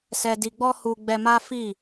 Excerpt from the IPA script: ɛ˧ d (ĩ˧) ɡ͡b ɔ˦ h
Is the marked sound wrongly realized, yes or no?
yes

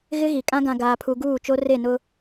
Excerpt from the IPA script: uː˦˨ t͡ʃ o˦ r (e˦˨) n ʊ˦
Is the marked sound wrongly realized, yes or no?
no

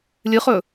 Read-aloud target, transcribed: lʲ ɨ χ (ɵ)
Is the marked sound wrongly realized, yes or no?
no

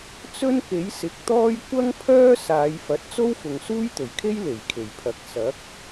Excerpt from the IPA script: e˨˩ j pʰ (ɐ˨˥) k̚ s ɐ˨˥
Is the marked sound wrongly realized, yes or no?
no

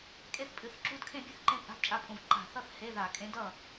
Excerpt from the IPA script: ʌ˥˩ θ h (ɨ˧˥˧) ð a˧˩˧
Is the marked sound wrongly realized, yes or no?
yes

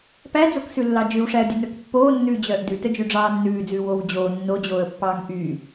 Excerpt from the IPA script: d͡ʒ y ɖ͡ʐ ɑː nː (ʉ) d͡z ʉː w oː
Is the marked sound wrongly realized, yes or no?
yes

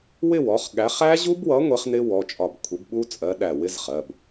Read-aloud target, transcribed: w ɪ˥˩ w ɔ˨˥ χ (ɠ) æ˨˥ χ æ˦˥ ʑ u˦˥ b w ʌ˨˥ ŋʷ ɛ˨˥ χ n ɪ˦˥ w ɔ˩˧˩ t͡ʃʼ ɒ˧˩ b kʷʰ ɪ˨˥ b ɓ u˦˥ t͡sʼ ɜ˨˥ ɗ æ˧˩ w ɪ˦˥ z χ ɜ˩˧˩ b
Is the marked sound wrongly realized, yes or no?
no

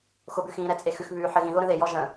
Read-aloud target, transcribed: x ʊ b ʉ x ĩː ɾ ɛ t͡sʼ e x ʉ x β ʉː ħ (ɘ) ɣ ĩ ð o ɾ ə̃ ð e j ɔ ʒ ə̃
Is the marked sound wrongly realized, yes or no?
no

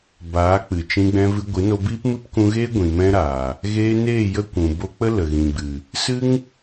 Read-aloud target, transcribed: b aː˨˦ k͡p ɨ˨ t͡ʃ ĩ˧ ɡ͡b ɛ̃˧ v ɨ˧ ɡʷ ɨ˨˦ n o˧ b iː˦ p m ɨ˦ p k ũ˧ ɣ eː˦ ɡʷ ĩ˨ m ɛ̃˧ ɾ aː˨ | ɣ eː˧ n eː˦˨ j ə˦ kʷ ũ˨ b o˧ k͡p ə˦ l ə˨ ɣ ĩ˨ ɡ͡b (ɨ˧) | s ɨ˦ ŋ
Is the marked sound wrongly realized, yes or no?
yes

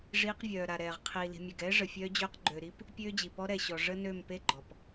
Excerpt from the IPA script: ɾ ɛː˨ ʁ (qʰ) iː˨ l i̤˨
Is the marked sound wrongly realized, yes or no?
no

